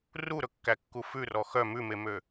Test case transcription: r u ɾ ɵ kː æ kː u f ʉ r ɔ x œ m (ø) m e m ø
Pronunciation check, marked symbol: incorrect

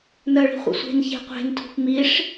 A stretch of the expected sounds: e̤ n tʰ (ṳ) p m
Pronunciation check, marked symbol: correct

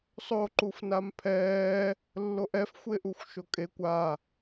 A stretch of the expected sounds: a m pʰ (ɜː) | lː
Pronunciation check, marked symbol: incorrect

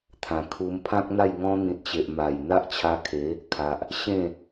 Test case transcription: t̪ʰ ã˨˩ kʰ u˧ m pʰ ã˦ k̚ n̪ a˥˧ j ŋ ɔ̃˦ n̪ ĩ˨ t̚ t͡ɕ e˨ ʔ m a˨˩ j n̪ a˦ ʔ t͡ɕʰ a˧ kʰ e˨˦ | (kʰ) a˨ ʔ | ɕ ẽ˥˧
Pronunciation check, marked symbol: correct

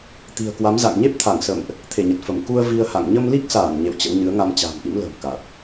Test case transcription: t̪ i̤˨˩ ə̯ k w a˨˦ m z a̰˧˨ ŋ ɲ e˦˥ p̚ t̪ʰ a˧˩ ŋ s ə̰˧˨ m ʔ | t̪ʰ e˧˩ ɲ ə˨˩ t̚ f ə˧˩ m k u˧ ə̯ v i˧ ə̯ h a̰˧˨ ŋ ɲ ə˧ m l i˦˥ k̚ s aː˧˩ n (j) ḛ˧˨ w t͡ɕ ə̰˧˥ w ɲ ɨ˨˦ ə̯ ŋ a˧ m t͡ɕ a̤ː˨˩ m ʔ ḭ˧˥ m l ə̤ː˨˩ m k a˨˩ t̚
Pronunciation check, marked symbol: incorrect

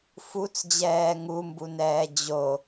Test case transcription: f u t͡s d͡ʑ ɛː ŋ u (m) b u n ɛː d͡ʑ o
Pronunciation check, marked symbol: correct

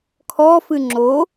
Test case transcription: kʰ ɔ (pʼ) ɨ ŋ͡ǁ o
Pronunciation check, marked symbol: incorrect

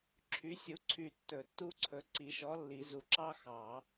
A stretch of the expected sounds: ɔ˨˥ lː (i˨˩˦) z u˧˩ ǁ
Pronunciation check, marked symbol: correct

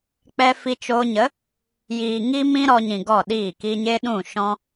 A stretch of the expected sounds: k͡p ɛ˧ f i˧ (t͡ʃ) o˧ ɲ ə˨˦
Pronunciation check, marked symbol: correct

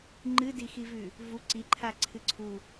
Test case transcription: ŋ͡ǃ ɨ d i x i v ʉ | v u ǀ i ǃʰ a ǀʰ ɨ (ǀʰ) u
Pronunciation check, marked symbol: correct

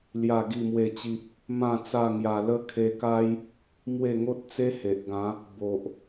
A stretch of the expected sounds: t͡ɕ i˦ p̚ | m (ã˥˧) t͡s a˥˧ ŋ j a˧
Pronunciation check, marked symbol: correct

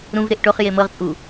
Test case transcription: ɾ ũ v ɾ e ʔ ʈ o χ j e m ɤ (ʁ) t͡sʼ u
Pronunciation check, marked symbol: correct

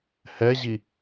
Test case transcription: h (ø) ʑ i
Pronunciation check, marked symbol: incorrect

